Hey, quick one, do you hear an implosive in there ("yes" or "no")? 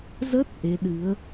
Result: yes